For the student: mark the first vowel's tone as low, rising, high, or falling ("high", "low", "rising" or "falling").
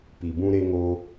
low